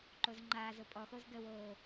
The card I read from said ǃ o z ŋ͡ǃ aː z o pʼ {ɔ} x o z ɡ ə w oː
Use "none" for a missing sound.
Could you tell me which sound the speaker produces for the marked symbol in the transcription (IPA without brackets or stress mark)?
ɔ